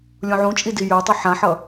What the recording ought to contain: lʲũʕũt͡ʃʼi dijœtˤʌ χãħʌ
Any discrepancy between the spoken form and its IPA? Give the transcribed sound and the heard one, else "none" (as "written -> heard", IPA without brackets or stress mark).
χ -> ħ